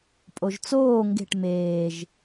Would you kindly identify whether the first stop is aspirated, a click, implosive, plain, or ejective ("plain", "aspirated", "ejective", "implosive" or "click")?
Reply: ejective